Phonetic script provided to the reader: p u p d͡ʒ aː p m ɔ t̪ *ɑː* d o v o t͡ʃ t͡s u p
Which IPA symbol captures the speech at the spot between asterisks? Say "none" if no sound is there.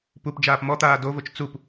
aː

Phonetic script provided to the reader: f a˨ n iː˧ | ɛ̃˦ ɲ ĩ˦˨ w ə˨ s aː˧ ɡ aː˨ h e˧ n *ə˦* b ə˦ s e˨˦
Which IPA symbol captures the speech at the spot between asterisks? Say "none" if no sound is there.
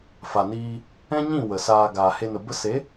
ə˨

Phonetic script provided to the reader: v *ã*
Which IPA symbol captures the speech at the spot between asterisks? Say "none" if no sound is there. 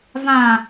ã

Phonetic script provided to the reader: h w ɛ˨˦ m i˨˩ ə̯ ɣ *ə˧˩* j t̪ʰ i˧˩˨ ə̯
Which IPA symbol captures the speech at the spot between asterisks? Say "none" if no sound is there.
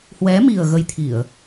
ə˧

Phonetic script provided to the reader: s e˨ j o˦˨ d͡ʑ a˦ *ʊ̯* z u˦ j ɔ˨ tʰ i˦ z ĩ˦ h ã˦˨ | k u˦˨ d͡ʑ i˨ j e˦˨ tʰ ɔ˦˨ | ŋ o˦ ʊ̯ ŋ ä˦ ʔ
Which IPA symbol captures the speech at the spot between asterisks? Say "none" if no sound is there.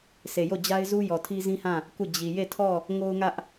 ɪ̯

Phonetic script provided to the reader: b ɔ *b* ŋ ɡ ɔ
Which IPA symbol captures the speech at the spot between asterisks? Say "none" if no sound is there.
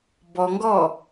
none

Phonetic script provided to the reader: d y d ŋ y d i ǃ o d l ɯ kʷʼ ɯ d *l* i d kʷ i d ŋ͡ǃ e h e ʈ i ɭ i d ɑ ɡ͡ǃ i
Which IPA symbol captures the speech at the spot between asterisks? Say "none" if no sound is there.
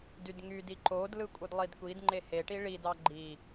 lˠ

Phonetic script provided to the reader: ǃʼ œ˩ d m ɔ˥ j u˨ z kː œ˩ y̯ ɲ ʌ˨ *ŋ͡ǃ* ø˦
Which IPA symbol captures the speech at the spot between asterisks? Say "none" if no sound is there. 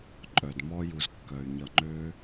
ŋ͡ǃ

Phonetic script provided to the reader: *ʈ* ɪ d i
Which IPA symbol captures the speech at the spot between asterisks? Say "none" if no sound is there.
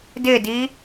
d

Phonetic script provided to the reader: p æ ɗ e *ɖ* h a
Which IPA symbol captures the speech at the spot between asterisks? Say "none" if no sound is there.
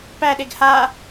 ɡ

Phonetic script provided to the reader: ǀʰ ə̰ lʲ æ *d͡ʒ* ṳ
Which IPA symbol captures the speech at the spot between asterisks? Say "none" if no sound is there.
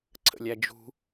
d͡ʒ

